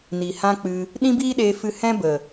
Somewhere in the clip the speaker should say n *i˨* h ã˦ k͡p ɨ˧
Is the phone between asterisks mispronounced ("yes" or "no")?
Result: no